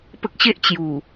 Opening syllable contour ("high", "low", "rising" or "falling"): high